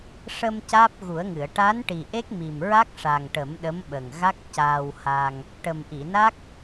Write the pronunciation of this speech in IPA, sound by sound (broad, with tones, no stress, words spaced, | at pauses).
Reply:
ʂə˧m caː˦˥p̚ɣu˨˩˦ə̯ŋɨ˨˩˨ə̯ ʈa˧˥n ʈi˨˩ʔe˦˥k̚ mi˨˩mɹa˦˥k̚ ʂa˨˩ŋʈə˨˩˦m ɗə˧˥mɓə˨˩ŋɣa˦˥k̚ caː˧wha˧ŋ | ʈə˨˩mʔi˨˩˨na˦˥k̚